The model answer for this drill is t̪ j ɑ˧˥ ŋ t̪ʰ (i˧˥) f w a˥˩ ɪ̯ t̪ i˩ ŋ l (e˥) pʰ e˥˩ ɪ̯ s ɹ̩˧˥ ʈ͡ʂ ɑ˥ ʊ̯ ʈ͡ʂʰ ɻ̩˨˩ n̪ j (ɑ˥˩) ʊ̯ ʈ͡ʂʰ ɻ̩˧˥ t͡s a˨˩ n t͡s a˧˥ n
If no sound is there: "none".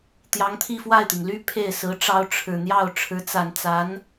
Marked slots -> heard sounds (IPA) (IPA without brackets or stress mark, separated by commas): i˥˧, y˥, ɑ˥˩